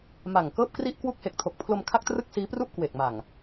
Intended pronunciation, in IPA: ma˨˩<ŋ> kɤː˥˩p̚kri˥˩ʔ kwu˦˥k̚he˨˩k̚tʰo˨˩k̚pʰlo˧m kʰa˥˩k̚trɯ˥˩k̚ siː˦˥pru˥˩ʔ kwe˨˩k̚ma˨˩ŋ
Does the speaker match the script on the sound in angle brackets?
yes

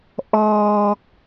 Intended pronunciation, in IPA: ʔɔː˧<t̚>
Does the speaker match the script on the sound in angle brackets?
no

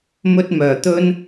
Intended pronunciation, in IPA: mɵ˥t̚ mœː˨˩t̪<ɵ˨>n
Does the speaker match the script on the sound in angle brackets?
no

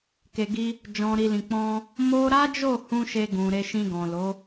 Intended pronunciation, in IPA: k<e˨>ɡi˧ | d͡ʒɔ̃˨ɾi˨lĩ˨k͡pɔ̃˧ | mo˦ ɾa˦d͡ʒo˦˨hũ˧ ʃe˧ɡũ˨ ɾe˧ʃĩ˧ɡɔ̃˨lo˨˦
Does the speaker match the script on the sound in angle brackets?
yes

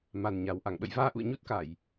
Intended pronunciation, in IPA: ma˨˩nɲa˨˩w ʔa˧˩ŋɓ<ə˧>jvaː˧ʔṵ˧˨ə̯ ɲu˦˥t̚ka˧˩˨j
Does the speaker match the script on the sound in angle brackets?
no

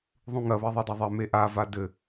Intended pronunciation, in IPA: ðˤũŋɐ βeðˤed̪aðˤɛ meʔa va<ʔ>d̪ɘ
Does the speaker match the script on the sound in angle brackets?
no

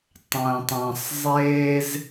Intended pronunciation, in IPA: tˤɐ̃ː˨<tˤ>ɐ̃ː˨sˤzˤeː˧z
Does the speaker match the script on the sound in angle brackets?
yes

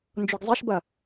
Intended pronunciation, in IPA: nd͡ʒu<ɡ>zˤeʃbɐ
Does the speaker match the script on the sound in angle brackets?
yes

